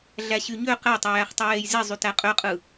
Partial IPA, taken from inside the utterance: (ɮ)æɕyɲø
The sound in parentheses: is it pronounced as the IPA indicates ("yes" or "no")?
yes